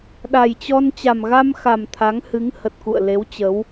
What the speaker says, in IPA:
ɗ a˨˩ j t͡ɕ ɔ˧ n t͡ɕ a˨˩ m ɣ a˧ m x a˨˩ m t̪ʰ a˨˦ ŋ h ɨ˨˦ ŋ h ə˨˩ t̚ k ṵ˧˨ ə̯ l e˨˦ w t͡ɕ ə˨˦ w

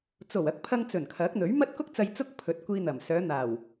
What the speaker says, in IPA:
t͡s o˨˩ w ɐ˨˥ k̚ pʰ ɐ˧ ŋ t͡s ɵ˨˩ n kʰ ɐ˨˥ k̚ n̪ ɵ˨˥ ɥ m ɐ˥ t̚ k ʊ˥ k̚ t͡s ɐ˧ j t͡s ʊ˥ k̚ pʰ ɵ˨˥ t̚ kʷ iː˧ n̪ ɐ˨˩ m s œː˨˧ n̪ aː˨˩ w

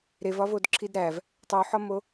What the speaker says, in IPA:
ɾ e v ɒ v o d ǁʰ i d ɾ æ v | tˤ u ħ ɒ m o

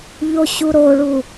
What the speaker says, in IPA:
ʎ o ɕ u ɾ o ɭ u

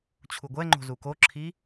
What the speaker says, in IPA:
t͡ɕʰ u ɡʷ ɛ ŋ͡ǃ o̤ z u k o ǁʰ i

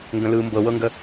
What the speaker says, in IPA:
ŋ ɡ ə̃ l ɯ m b ɤ w ɤ ŋ ɡ ə

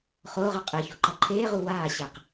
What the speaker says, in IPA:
χ oː ʁ ʌ qʼ e ç o ǃ ʌ ǃʰ eː ʁ u w aː ɕ ɛ q

